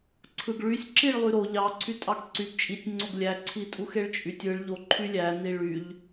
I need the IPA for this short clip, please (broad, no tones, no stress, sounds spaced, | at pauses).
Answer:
ǀʰ ɯ ɡ ɭ y sʲ ǁ i ɭ lˠ y ɾ o ʎ ɑ ǀʰ y tʼ ɑ ɡ ǀ y ɡ t͡ʃʼ i tʲ ŋ͡ǀ o ɡ lʲ æ ǀʰ i tʼ u x e ɭ t͡ʃʼ y tʲ ɯ ɭ ʎ o ǃʰ y lʲ æ n i ɭ y ʎ